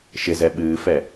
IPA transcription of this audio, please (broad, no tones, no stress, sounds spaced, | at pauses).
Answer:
ʃ ɪ z ɛ ɓ ɨː f ɛ